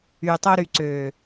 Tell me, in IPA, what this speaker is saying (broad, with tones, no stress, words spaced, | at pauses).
y˨tˤo˧ɾy˨ ǀø˨